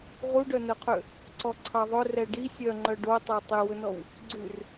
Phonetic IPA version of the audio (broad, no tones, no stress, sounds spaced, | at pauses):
ʁ u ɖ œ n œ qʰ ø | ǀ ɔ ǀʰ ɑ ðˤ ɵ r ɛ ɖ i sʲ œ ŋ͡ǃ œ ɖ o tˤ ɑ tˤ ø w ɵ n ɔ w | ɡ͡ǀ ʉ r